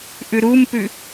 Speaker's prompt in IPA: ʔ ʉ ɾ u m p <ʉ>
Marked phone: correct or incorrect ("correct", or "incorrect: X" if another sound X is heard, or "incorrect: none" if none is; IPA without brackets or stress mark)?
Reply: correct